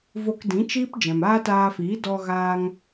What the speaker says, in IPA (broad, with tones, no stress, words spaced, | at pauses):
vo˧kdĩ˨˦t͡ʃiː˦p d͡ʒɛ̃˨maː˦taː˧fiː˨˦ dɔ˧ɣaː˧ŋ